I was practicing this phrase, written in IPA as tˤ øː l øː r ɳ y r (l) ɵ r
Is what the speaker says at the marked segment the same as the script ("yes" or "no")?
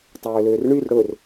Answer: no